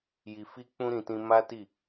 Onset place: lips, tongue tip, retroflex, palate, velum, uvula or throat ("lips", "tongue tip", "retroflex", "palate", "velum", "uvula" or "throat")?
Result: palate